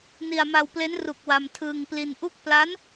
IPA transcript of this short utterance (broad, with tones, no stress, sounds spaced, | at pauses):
n i˧ a̯ m a˧ w p l e˦˥ n r u˨˩ k̚ w a˧ m tʰ ɯː˧ ŋ p l i˧ n ʔ u˥˩ k̚ p l a˦˥ n